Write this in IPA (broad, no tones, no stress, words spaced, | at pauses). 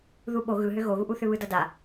ðuɓo ɣɯɦʏ ɣoɣuʔuθʏ βɯdʌda